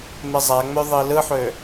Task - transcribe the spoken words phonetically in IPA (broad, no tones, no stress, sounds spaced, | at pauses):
m e zˤ æ ŋ͡m ø ðˤ i l ɯ ħ ø